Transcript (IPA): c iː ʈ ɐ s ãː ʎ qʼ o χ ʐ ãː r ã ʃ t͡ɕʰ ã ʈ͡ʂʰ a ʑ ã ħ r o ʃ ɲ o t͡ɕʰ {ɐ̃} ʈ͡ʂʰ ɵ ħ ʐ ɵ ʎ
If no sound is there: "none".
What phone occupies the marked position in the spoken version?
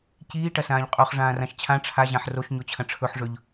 ɐ̃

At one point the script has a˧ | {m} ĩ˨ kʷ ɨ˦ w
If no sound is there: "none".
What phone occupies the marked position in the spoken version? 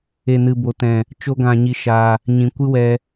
ɲ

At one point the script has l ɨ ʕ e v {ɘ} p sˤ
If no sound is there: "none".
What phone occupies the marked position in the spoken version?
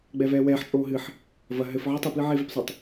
e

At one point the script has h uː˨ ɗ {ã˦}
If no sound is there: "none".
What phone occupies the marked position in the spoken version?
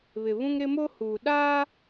a˦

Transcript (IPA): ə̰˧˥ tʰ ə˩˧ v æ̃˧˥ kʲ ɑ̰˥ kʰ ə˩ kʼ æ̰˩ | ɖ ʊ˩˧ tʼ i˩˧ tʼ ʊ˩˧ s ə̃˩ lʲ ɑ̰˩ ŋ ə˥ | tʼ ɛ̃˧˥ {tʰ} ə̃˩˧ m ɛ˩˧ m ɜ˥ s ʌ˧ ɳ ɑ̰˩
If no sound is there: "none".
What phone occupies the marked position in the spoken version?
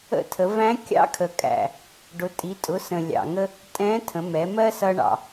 tʰ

